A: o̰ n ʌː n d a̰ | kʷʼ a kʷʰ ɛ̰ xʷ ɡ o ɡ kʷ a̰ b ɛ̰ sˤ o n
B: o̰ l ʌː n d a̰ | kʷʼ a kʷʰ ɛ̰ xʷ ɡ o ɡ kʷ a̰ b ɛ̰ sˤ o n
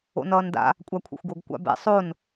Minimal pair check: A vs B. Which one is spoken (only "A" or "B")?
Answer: A